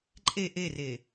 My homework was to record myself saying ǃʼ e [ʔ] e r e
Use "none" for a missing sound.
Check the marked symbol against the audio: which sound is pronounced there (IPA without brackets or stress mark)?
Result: ʔ